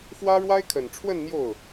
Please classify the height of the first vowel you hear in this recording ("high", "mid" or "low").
low